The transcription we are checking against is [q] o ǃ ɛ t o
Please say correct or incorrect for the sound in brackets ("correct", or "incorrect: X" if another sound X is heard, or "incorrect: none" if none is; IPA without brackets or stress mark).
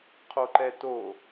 incorrect: qʰ